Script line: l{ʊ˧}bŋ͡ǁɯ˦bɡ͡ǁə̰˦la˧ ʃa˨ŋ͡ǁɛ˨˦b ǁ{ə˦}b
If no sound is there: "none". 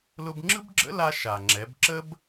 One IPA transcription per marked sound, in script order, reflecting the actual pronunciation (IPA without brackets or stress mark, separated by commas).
ʊ˧, ə˦